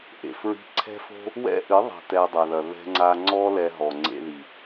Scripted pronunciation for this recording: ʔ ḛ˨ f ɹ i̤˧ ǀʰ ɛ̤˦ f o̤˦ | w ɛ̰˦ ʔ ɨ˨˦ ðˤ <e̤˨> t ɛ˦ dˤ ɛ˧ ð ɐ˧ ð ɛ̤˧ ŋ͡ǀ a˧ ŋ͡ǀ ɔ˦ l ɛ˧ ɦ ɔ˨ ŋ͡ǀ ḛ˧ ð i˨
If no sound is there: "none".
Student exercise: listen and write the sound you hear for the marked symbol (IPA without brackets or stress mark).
e̤˨